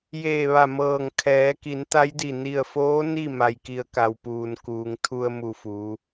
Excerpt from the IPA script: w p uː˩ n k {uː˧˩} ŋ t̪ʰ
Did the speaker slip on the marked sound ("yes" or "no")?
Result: yes